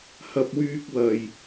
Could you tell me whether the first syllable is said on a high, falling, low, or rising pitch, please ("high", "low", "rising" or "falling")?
high